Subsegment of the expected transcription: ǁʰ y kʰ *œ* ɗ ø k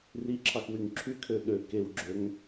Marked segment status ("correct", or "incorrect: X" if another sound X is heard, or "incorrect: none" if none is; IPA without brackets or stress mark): incorrect: ø